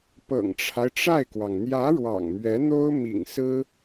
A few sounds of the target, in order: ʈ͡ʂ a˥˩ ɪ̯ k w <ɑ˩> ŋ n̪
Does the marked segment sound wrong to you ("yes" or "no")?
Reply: no